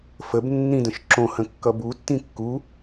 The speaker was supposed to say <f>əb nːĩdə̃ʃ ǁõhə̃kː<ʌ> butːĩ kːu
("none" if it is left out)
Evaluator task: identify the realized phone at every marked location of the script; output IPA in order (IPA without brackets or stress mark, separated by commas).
f, ʌ